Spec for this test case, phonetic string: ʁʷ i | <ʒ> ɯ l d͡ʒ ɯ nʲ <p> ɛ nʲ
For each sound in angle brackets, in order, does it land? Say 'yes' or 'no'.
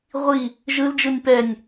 yes, yes

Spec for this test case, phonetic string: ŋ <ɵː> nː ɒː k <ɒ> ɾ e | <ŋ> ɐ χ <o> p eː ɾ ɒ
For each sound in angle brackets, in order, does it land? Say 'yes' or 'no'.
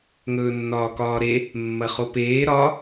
yes, no, no, yes

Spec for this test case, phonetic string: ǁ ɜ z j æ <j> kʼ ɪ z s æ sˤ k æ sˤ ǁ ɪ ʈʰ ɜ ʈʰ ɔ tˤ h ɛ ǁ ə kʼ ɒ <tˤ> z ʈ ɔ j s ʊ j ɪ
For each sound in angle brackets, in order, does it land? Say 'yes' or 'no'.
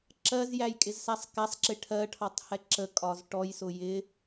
yes, no

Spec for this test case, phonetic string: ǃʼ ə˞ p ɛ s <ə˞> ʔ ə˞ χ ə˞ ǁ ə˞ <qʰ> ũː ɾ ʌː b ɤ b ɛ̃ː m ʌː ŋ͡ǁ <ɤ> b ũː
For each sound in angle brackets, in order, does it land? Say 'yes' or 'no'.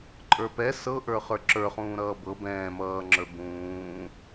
no, no, no

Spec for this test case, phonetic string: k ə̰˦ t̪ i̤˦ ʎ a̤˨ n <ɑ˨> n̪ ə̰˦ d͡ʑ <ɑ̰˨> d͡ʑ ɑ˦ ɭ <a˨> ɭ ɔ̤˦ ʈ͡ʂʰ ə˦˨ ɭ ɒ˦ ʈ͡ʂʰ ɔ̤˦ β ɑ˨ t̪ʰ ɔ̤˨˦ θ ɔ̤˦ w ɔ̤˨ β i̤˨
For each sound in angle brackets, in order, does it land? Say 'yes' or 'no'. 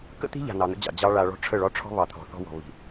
yes, yes, yes

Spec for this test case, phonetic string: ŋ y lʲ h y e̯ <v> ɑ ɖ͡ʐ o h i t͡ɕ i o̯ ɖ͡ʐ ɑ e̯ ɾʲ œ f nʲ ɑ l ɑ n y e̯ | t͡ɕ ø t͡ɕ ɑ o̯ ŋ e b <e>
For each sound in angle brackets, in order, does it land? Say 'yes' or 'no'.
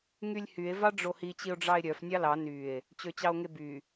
yes, no

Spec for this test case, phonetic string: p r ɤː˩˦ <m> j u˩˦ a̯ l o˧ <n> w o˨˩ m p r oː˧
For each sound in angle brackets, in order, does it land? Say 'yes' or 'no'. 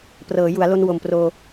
no, yes

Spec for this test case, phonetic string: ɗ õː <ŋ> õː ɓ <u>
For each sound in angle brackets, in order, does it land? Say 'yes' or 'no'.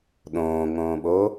yes, no

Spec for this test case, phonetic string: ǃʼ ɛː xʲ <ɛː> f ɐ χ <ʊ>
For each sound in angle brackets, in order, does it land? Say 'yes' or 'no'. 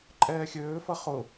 no, yes

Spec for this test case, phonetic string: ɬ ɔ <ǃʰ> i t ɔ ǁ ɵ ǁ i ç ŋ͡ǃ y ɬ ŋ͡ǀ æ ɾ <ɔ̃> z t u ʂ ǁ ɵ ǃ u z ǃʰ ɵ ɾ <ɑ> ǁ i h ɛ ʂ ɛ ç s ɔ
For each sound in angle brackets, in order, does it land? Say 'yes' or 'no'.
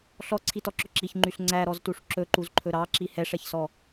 no, no, yes

